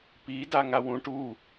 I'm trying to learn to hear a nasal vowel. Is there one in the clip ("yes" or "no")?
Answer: yes